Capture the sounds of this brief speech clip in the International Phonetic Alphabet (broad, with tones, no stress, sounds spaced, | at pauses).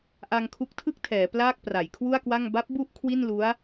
ʔ a˧ ŋ kʰ u˦˥ k̚ tʰ ɯ˥˩ k̚ tʰ ɛː˩˦ p l aː˥˩ k̚ p r a˩˦ j kʰ w u˥˩ a̯ k w a˥˩ ŋ b a˦˥ p̚ b u˥˩ ʔ kʰ w i˥˩ n l u˦˥ a̯